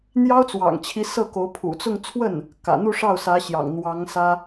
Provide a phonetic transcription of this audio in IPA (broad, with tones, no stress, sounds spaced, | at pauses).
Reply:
n̪ j ɑ˥ ʊ̯ t͡s w ɑ̰˨˩ ŋ t͡ɕʰ i˧˥ s ɤ˥˩ k o˧˥ ʊ̯ pʰ ṵ˨˩ t͡s ʊ˥˧ ŋ t͡sʰ w ə˥˩ n | k ä̰˨˩ n̪ u˥˧ ʂ ɑ˥˩ ʊ̯ s ä˧˥ ɕ j ɑ̰˨˩ ŋ n̪ w ɑ˧˥ ŋ s ä˥